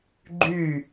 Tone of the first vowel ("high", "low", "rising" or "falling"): falling